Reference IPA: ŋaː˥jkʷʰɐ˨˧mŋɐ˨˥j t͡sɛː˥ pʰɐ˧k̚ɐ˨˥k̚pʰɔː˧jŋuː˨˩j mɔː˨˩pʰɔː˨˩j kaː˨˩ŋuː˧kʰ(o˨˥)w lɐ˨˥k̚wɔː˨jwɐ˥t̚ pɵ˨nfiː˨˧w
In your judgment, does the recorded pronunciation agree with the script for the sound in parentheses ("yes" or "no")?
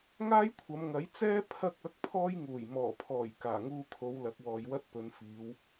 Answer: no